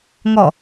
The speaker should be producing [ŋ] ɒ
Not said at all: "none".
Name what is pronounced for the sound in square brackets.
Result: ŋ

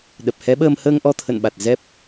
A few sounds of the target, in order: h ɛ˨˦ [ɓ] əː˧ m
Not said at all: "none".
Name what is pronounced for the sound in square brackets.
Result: ɓ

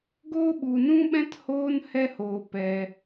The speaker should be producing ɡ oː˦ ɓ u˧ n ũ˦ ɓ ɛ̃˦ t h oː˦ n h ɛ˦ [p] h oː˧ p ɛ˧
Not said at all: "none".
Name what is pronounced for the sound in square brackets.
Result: none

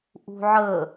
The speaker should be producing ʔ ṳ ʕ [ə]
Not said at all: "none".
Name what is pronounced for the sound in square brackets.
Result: ə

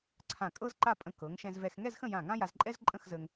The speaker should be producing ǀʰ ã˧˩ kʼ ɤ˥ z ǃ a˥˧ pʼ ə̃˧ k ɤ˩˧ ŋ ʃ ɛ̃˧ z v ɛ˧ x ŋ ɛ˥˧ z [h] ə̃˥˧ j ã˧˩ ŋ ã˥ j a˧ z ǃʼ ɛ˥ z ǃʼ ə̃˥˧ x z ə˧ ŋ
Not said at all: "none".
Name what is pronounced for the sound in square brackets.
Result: x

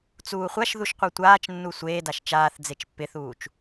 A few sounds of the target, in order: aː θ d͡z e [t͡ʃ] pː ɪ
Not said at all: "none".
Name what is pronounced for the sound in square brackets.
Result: t͡ʃ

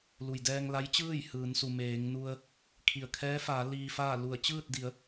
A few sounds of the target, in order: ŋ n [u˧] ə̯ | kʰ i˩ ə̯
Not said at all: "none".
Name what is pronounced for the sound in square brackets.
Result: u˧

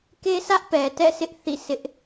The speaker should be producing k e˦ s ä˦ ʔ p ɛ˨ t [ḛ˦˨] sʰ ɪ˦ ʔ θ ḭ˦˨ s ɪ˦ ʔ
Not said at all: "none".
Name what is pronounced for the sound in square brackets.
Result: ɛ̰˦˨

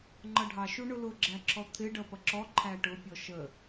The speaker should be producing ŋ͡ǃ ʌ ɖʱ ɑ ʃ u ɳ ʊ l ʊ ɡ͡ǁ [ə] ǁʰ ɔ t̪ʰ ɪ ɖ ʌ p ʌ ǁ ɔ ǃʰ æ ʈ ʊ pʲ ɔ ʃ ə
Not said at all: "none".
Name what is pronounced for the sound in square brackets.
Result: æ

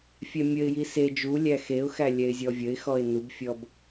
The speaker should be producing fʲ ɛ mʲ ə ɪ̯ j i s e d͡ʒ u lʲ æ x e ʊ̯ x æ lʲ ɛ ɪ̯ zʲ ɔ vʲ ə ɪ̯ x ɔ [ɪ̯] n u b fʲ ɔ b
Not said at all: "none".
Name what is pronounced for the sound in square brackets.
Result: ɪ̯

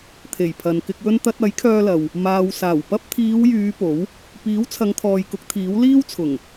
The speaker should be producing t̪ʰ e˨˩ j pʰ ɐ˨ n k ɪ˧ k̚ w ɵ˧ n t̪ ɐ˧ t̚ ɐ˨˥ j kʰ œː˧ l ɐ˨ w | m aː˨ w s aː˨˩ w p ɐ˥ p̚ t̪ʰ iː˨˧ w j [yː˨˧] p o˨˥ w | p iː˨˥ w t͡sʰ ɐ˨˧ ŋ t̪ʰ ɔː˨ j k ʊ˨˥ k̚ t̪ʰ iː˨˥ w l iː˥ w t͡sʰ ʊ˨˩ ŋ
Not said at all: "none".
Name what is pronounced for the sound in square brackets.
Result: yː˨˧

